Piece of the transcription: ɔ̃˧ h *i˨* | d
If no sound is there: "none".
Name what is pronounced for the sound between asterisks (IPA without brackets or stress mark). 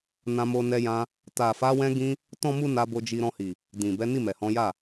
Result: i˨